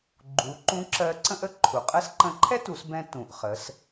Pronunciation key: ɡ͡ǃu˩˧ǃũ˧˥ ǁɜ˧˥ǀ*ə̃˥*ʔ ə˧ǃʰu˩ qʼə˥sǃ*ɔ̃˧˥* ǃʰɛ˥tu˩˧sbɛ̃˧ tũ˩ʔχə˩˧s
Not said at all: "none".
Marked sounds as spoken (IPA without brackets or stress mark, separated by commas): ə̃˥, ə̃˧˥